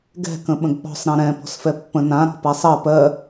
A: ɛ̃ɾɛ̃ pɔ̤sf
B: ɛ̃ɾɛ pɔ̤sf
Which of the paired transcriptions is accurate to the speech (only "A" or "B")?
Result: A